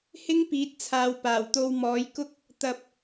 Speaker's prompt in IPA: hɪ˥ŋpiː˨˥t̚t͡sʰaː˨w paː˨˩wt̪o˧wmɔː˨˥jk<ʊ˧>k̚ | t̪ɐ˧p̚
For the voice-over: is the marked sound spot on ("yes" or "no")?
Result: no